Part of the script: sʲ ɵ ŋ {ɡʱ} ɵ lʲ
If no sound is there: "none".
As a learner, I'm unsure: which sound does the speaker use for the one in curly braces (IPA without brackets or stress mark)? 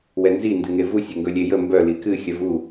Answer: ɡ